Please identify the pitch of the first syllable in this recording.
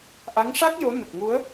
rising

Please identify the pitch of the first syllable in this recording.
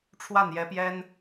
falling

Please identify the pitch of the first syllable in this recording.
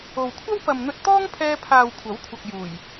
low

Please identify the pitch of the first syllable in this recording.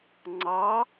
rising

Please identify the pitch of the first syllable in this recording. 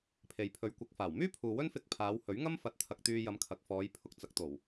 low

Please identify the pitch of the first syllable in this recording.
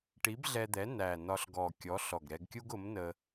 rising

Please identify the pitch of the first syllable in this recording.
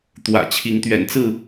low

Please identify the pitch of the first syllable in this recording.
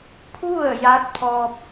falling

